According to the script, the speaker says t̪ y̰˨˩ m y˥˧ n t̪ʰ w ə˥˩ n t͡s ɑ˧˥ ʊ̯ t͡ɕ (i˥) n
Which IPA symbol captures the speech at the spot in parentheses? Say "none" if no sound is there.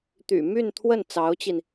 i˧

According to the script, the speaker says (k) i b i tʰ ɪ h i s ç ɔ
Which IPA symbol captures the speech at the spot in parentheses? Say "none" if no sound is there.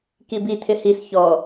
k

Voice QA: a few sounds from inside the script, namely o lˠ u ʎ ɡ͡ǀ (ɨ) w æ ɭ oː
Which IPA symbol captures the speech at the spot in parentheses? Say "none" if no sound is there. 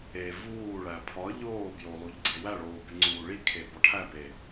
e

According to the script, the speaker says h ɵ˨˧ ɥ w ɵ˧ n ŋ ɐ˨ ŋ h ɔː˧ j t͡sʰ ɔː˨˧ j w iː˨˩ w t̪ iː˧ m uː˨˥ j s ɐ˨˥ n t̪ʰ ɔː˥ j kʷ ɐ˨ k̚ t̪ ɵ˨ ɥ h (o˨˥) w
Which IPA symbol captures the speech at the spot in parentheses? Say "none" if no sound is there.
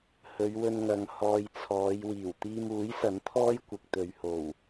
o˨˩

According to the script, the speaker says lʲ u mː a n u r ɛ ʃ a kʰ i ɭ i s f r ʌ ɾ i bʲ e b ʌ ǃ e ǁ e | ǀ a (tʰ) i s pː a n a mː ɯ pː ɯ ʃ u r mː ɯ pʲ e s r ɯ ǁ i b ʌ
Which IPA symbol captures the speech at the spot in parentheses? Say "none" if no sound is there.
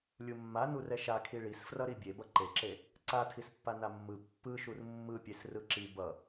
tʰ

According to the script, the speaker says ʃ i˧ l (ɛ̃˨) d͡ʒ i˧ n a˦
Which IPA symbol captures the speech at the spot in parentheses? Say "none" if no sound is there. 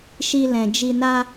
ɛ̃˨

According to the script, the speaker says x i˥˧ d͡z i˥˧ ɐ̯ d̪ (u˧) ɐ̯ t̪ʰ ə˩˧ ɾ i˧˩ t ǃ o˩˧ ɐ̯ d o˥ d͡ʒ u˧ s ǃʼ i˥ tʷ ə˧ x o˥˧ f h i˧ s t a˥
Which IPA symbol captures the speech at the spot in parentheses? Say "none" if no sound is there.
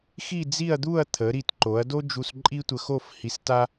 u˥˧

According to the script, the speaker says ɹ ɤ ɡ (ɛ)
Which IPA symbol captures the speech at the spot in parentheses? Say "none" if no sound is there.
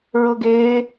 e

